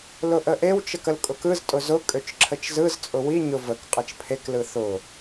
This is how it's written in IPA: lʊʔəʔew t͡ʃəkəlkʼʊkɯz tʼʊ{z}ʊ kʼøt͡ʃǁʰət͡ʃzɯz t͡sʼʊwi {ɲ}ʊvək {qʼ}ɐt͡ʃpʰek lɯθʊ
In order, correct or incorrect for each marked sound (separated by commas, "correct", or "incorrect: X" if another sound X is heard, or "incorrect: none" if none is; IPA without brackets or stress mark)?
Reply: correct, correct, correct